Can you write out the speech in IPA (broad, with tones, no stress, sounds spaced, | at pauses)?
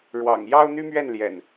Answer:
ɻ w ɑ̰˨˩ ŋ j ɑ˦ ʊ̯ n̪ y˦ m ɥ ɛ˥˨ n l j ɛ̰˨˩ n